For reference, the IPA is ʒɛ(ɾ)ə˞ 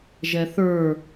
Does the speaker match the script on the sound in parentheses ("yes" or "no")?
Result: no